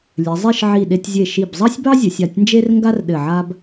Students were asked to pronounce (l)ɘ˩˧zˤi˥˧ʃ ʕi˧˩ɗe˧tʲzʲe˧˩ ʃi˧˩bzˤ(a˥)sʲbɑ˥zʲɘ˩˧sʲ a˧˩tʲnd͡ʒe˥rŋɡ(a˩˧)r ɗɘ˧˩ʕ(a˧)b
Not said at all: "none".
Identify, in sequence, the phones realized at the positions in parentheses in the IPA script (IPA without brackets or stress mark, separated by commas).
lʲ, ɑ˥, a˥, a˥